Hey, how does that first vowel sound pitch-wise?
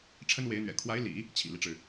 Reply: high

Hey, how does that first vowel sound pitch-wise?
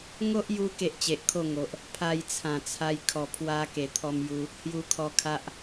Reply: high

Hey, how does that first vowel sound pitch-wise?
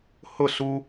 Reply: falling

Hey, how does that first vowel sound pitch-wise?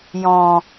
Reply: low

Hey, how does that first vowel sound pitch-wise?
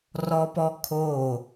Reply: high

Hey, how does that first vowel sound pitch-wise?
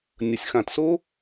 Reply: low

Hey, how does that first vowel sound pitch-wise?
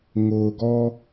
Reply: low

